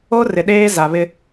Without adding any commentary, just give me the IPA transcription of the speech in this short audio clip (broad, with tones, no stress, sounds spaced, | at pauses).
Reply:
o˦ r ɪ˨ ɗ eː˦ z a˨ β ɪ˨